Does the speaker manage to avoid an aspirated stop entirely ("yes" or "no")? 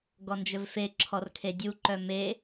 no